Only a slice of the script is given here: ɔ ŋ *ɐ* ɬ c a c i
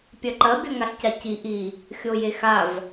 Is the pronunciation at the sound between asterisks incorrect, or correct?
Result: incorrect